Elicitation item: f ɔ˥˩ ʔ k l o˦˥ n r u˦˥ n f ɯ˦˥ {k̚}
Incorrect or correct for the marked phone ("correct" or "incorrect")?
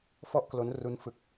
correct